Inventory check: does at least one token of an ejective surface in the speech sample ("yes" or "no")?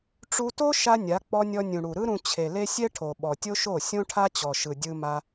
no